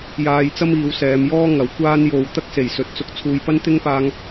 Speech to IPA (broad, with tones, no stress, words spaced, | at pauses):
jaː˧jt͡sɐ˥miː˨˧w sɛː˨˧mjɔː˥ ŋɐ˨˥wkʷaː˥n jo˨wt̪ɐ˥k̚ se˨˩jsɵ˨˥t̚t͡sʊ˧k̚ t͡sʰuː˨jpɐ˥nt̪ɪ˥ŋpaː˧ŋ